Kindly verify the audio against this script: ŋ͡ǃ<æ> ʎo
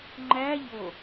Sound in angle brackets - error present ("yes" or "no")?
no